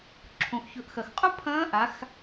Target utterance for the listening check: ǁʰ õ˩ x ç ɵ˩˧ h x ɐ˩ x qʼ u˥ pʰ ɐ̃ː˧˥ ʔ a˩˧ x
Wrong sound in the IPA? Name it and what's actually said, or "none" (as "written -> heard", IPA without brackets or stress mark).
h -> ʔ